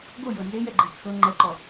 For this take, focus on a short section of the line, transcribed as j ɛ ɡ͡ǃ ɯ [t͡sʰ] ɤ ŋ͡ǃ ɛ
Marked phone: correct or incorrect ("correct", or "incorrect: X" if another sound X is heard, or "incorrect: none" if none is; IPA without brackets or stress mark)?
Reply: correct